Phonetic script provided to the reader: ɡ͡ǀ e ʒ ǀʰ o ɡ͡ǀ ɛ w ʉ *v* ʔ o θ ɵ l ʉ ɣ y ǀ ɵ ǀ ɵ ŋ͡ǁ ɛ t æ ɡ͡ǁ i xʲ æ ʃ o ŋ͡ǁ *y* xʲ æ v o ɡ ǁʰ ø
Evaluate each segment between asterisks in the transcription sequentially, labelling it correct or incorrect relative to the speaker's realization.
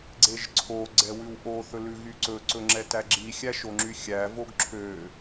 incorrect: w, correct

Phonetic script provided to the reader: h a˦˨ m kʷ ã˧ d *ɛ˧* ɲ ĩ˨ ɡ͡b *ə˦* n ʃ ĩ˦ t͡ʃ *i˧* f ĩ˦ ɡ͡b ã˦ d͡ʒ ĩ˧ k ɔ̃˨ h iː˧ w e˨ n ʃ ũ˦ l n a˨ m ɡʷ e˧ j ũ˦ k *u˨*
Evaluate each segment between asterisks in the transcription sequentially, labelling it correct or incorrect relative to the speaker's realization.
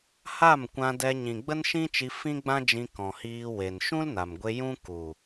correct, correct, correct, correct

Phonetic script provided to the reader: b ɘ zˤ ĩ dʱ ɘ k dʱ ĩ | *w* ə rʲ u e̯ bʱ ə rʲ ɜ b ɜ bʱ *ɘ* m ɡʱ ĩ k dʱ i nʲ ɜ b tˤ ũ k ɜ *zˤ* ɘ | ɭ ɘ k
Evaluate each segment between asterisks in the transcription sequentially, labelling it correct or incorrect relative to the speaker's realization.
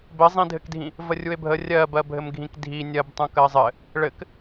incorrect: v, correct, correct

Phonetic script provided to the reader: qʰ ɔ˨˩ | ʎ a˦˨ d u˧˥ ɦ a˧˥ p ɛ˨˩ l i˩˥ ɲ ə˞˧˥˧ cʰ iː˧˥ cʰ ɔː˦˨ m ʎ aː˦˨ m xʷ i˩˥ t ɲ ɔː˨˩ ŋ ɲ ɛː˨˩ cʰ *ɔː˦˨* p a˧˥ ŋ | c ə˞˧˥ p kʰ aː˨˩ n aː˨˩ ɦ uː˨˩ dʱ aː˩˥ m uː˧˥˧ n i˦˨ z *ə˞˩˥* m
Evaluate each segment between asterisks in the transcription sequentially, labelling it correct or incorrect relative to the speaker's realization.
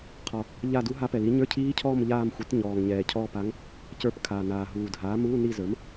correct, correct

